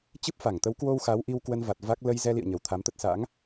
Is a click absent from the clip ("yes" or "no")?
yes